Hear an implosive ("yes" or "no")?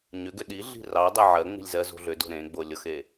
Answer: yes